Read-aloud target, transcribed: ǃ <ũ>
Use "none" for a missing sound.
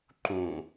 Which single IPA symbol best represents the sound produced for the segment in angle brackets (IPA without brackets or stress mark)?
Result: ũ